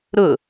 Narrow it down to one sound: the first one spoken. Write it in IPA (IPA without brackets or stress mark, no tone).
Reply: ɾ